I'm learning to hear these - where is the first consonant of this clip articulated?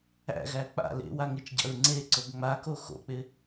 velum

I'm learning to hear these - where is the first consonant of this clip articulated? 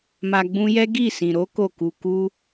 lips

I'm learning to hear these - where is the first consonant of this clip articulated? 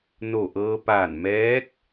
tongue tip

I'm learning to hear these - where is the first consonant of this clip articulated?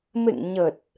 lips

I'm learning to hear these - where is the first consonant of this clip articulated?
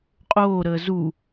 uvula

